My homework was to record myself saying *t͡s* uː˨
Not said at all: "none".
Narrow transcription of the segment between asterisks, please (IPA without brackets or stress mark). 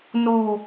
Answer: n